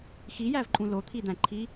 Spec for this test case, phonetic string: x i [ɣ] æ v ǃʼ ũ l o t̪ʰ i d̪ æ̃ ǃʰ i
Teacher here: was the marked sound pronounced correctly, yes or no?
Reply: no